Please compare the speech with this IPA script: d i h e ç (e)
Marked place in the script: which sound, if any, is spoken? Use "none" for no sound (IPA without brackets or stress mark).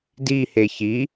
i